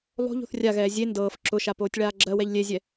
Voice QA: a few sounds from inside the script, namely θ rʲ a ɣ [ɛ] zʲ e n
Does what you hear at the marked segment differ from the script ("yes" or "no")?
yes